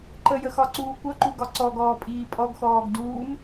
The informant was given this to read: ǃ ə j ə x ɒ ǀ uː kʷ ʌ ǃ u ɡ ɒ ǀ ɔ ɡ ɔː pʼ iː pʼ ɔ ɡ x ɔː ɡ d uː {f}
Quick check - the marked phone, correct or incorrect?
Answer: incorrect